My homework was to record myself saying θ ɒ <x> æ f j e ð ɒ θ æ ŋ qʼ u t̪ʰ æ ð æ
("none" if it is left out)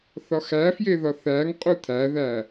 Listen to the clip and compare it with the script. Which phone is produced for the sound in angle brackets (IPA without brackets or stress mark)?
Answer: x